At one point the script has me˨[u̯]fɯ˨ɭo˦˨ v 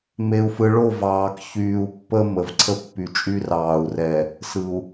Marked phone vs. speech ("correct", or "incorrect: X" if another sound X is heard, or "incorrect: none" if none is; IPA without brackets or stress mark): correct